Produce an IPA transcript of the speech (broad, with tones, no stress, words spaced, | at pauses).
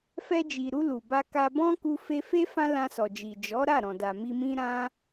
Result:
fɛ˧d͡ʒi˨ɾu˧ lu˨ba˧ka˧ bɔ̃˦ku˧fe˧fe˦ fã˦lã˧sɔ˨d͡ʒi˨ d͡ʒɔ˨˦ɾa˦˨ɾɔ̃˨da˨ mi˧mĩ˦ɾã˦